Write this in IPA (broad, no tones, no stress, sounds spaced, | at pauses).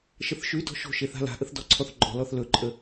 ʃ ə θ ʃ ʉ d ɔ̤ ʃ o̤ ʃ e θ a̤ l a̤ ʔ ə θ d ɔ ǀʰ ɔ θ ɡ͡ǃ ɔ̤ l ɔ θ l ɵ ǃʼ ə